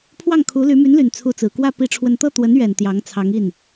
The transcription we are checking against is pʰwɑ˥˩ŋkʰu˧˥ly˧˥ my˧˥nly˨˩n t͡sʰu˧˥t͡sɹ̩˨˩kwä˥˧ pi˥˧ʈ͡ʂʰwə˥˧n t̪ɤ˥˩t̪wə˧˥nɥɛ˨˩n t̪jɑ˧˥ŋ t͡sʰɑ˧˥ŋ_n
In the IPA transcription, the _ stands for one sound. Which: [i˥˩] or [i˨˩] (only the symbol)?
i˥˩